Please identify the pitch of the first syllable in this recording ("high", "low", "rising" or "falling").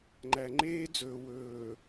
low